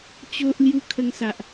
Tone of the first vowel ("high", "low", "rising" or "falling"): high